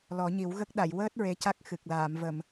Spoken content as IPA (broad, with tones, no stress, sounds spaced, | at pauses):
l ɔ˨˩˦ ɲ i˨˩˦ w ɣ ə˦˥ k̚ ɗ a˨˩˨ j w əː˦˥ t̚ ɹ e˧˥ c a˦˥ k̚ x ɨ˨˩ k̚ l aː˨˩˨ m v ə˨˩˨ m